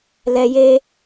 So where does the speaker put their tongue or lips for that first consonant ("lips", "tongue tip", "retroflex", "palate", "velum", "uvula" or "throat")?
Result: tongue tip